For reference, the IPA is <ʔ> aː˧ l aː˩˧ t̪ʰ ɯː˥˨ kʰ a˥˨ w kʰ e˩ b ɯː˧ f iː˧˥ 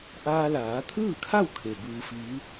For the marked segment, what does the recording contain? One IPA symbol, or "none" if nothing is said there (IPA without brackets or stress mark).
ʔ